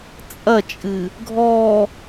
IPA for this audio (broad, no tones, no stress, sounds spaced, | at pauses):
t͡sʼ ɐ t͡ʃʼ ɨ | ɡʱ ɔ